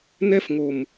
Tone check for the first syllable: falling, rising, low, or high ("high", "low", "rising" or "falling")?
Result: high